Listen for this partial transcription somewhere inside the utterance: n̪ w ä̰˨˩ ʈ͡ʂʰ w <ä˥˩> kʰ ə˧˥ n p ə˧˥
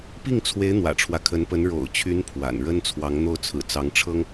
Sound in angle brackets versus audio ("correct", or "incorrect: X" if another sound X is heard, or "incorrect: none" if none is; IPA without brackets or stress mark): incorrect: ä˦